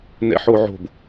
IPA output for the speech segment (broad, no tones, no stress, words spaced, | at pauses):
nɛ̰ħoʕo̤b